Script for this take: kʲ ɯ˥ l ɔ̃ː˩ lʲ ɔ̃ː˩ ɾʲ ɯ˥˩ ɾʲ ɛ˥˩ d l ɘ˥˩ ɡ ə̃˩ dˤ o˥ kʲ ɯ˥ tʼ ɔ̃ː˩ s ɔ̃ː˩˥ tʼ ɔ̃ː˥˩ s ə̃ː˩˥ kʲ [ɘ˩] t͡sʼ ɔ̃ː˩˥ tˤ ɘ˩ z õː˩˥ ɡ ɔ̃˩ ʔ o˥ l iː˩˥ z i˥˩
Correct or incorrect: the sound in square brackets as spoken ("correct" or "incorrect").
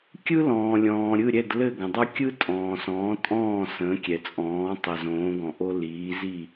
incorrect